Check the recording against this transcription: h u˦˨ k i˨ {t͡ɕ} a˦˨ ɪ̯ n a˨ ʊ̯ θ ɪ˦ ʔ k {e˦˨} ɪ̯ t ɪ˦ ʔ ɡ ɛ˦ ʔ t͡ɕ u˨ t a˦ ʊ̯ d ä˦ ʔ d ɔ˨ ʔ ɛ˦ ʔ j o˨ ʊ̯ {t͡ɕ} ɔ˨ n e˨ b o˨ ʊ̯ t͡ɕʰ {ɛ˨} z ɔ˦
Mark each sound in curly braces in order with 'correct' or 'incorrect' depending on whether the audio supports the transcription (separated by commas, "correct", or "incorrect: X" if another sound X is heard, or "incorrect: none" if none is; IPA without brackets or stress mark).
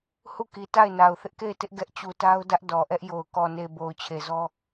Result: incorrect: t, correct, incorrect: k, incorrect: e˨